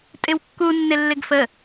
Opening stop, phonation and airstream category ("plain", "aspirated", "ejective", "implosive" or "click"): ejective